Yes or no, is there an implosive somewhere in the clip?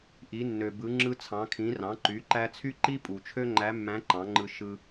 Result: no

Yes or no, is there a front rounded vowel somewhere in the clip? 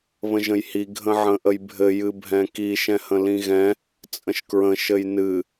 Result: no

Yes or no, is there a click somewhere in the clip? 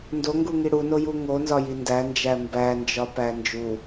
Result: no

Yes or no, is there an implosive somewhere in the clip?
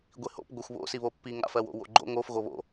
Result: no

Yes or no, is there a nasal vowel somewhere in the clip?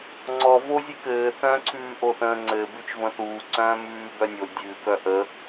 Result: yes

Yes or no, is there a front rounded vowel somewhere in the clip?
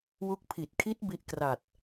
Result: no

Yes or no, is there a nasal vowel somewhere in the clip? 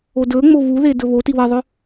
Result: no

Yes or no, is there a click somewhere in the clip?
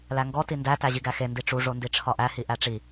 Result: no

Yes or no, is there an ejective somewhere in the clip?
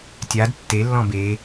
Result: no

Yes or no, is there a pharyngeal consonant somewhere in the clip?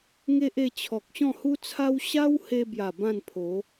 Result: no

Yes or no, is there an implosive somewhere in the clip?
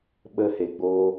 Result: yes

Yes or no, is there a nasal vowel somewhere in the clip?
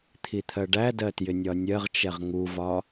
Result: no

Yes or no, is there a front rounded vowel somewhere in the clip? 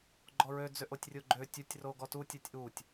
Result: yes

